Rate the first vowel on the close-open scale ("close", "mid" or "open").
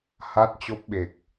open